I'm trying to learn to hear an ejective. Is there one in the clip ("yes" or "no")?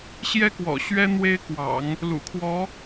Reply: no